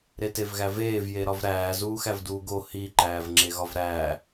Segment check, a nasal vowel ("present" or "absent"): absent